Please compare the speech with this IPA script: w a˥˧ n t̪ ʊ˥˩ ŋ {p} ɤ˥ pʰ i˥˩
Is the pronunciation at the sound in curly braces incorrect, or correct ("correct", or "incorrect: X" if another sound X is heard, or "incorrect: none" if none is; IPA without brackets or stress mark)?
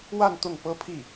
correct